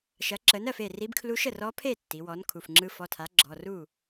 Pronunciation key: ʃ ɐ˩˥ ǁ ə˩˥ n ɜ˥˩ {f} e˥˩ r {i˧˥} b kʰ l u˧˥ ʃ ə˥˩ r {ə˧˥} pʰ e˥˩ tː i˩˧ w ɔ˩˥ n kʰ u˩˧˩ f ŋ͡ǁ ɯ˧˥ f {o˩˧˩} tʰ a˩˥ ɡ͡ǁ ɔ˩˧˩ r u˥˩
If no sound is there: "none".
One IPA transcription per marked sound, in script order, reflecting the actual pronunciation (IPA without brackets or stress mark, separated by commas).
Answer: f, i˧˥, ɔ˧˥, ɔ˩˧˩